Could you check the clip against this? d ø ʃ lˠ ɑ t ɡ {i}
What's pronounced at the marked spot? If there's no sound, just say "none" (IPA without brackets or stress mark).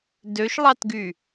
y